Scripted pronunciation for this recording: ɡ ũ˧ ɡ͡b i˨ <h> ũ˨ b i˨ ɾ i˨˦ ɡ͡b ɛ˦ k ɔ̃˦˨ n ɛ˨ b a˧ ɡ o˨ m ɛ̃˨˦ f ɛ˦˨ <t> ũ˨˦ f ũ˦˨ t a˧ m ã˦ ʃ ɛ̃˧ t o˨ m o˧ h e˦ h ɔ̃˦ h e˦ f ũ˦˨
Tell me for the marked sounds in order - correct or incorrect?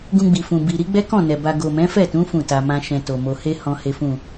incorrect: f, correct

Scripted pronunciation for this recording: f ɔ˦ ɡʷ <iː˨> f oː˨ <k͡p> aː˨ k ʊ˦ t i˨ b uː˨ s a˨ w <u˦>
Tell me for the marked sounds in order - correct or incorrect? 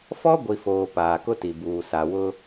incorrect: i˨, incorrect: p, incorrect: ʊ˦

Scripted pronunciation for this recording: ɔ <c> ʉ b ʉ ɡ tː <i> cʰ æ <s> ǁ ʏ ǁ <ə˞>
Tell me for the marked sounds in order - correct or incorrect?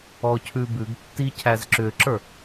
incorrect: cʰ, correct, incorrect: z, correct

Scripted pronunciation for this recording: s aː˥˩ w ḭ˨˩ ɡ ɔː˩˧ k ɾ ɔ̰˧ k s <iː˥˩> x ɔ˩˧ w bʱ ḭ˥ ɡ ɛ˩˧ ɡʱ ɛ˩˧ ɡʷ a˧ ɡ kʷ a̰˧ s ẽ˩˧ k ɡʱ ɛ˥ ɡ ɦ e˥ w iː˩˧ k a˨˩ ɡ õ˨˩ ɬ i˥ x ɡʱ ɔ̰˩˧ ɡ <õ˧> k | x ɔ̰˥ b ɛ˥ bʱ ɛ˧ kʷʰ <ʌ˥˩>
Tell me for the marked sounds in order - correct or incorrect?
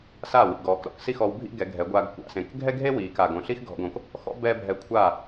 incorrect: i˥˩, incorrect: õ˩˧, incorrect: a˥˩

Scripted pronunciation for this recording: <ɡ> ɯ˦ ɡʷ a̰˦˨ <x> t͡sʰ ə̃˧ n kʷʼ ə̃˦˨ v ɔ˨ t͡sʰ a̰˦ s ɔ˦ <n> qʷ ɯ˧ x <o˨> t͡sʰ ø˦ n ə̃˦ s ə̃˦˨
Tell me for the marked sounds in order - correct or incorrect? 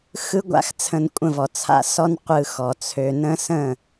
incorrect: x, correct, correct, incorrect: ɔ˨

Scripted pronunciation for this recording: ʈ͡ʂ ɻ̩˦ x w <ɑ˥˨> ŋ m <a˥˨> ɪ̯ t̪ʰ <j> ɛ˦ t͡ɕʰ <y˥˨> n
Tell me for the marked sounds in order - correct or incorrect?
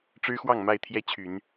correct, correct, correct, incorrect: y˨˦

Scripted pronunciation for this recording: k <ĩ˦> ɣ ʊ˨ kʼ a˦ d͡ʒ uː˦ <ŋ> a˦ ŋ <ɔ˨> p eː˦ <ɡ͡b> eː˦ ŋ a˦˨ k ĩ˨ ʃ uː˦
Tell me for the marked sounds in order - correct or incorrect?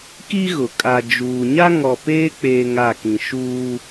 incorrect: i˦, incorrect: ɲ, correct, incorrect: k͡p

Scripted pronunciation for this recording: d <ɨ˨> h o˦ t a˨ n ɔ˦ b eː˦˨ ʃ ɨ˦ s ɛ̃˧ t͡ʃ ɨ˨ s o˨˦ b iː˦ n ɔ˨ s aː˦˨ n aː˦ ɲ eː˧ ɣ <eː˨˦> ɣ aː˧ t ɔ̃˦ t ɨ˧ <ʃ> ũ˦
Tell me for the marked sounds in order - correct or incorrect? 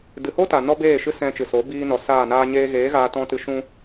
correct, correct, correct

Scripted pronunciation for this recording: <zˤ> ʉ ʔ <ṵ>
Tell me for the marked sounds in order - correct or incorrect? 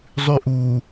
correct, incorrect: u

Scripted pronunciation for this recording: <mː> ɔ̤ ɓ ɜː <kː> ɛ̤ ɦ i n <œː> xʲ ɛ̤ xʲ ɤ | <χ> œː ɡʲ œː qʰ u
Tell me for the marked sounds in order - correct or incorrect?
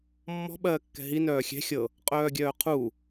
correct, correct, correct, incorrect: qʼ

